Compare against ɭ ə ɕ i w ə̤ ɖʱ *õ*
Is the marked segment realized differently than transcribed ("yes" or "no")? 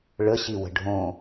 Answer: no